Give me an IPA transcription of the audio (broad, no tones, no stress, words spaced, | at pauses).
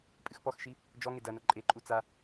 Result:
pʼɨxpɔxʃi | d͡ʒɔŋe dɐnɐ ǃʼeǃʼu t͡sa